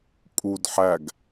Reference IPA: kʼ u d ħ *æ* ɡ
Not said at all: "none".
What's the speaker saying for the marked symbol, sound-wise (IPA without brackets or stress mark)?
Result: æ